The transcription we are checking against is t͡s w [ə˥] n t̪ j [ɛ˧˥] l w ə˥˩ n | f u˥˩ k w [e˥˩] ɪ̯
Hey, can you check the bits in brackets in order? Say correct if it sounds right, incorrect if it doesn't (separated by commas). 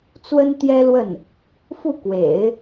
correct, incorrect, incorrect